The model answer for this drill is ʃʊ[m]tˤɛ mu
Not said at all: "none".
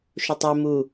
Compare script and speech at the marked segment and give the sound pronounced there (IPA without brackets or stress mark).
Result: none